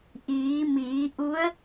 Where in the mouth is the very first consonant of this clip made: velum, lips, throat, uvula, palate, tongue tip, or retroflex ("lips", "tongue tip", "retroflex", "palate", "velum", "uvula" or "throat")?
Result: throat